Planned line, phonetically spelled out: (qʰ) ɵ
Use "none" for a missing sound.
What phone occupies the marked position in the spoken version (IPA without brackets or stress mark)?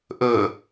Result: ʔ